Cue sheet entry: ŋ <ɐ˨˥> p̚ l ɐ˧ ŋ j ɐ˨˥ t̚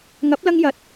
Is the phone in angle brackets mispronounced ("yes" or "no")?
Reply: no